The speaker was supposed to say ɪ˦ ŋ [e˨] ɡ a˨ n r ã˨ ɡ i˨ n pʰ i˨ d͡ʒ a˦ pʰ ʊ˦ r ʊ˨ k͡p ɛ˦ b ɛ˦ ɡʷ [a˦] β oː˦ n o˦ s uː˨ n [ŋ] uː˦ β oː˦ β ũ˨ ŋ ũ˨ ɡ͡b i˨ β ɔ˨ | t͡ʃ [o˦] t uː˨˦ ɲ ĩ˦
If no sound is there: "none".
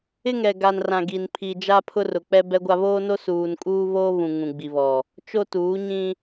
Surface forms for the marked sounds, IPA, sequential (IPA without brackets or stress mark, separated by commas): ɛ˨, a˦, kʼ, o˦